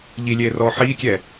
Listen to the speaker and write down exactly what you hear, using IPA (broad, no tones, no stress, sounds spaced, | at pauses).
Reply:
ʎ i lʲ eː r ɔː ħ iː kʲ ɛ